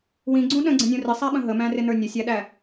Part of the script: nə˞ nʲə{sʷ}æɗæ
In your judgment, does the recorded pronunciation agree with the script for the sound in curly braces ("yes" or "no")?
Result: no